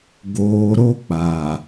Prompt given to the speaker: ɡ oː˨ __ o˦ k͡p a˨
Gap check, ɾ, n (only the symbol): ɾ